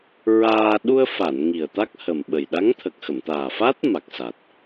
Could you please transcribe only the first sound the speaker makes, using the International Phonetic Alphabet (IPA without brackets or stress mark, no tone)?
ɹ